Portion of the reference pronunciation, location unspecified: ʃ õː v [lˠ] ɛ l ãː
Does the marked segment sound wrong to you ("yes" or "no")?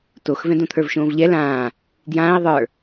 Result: yes